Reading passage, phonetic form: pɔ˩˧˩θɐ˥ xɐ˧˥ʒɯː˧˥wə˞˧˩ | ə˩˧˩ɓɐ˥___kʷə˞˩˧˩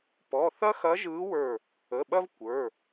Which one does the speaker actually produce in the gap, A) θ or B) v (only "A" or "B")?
B